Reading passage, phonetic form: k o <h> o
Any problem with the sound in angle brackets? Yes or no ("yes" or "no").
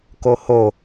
no